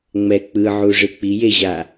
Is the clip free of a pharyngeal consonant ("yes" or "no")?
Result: no